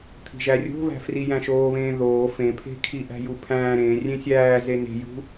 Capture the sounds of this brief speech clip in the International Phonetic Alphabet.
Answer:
t̪ʰ i̤ ʒ æ rʲ o̤ β æ̤ f r i j æ̃ ʃ oː β ẽː ð oː f ẽ pʰ e̤ kʰ i ʔ æ̤ j u pʰ æ̃ː ɾ ẽ rʲ ẽ sʲ æː z e n e̤ j ṳ

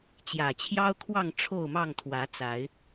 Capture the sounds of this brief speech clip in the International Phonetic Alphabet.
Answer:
t͡ɕ j ä˨˩ t͡ɕʰ j ɑ˦ ʊ̯ kʰ w ɑ˥˨ ŋ ʈ͡ʂʰ o˥˨ ʊ̯ m ɑ˥˨ ŋ t̪ʰ w ä˨˦ t͡s a˨˦ ɪ̯

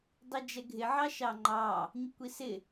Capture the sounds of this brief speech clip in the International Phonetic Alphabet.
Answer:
dˤ i d͡ʒ ɛ ɡʱ ɪ ʕ ɑ ʃ ɑ ŋ͡ǃ ɑ | ɲ ə kʷ i s ɪ

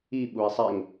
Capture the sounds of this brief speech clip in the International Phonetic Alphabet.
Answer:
i ɓ u i̯ sˤ ɛ ŋ

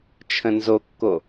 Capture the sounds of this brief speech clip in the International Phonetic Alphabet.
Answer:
t͡ʃʰ ə̃ n z o kː o

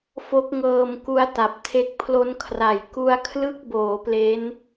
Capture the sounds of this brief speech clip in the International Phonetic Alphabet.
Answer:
f o˦˥ k̚ ŋ ɤː˧ m k u˦˥ a̯ t a˨˩ p̚ tʰ e˦˥ k̚ pʰ l o˦˥ n kʰ r a˨˩ j k u˦˥ a̯ kʰ l ɯ˥˩ k̚ b oː˩˦ p l e˦˥ n

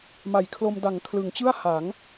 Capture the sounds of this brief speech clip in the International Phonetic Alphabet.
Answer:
m a˨˩ j kʰ l o˧ m d a˩˦ ŋ kʰ l ɯ˩˦ ŋ t͡ɕ ɯ˥˩ a̯ h a˩˦ ŋ

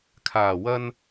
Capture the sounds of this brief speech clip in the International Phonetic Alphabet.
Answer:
kʰ aː˨˩ w ɐ˧ n

